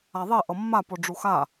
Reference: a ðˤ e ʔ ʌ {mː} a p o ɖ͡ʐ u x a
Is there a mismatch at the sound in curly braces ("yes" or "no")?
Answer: no